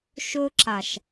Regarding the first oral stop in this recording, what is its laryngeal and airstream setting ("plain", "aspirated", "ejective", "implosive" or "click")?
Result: click